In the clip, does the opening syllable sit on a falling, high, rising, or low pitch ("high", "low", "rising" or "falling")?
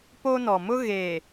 high